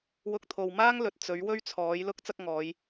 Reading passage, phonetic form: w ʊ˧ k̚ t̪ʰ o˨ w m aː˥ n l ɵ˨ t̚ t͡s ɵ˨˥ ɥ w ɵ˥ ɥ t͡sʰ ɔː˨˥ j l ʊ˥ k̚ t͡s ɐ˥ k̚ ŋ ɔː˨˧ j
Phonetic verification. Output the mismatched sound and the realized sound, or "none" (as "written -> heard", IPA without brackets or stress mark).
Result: n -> ŋ